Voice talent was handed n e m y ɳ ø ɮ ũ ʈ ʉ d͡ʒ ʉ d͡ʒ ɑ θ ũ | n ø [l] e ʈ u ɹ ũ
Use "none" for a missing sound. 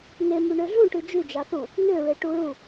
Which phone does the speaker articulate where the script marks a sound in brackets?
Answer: ɹ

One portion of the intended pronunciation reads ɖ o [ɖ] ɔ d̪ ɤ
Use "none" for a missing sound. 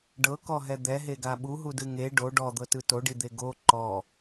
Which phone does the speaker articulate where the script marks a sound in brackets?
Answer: ɖ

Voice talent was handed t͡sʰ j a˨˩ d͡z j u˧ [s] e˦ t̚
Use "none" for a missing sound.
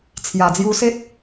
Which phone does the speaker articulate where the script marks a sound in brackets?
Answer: s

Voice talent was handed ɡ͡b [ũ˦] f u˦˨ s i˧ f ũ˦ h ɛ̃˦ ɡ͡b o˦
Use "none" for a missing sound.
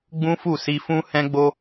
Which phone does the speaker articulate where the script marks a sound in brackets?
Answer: ũ˦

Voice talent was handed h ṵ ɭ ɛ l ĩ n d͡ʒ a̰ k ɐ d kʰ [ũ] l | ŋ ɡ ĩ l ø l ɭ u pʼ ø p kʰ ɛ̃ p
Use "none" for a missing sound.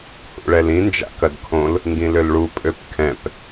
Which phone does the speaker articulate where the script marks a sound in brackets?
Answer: õ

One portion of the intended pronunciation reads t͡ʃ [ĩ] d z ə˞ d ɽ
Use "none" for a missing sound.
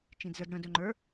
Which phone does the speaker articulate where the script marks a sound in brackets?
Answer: ĩ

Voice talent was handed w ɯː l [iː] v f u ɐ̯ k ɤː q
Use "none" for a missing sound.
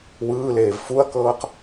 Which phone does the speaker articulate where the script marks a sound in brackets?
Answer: eː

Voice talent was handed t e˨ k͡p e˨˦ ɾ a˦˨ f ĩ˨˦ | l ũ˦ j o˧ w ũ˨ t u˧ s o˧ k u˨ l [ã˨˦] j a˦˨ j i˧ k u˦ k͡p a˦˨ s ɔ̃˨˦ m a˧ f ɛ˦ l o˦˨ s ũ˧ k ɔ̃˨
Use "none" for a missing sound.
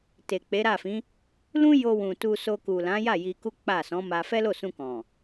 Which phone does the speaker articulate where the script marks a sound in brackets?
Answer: ã˨˦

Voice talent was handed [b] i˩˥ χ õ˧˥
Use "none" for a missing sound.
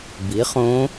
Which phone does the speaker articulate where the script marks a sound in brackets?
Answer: b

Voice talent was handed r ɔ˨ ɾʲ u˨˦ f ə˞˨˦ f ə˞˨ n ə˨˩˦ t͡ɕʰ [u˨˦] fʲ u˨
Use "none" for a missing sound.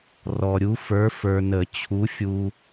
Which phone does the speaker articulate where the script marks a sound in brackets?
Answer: u˨˦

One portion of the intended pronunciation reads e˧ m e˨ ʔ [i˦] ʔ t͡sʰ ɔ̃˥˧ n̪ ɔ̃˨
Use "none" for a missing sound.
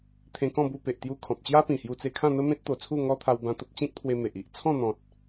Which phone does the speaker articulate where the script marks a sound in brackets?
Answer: i˨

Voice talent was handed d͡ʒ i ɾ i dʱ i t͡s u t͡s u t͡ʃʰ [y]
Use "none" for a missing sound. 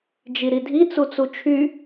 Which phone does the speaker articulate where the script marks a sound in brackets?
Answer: y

